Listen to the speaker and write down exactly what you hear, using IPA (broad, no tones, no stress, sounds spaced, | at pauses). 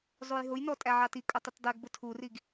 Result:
zˤ u j ɦ ʊ j n ɔ tʼ æ ʕ ɑ t i kʼ ʊ tˤ ʊ t dˤ i ɡ b ʊ tʰ u r i ɡ